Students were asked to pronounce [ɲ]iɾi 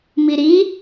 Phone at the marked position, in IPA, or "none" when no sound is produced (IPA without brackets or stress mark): m